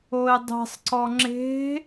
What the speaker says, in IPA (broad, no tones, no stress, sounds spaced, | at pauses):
o e̯ dˤ e̤ sˤ ǀ ɔ ŋ͡ǁ e̤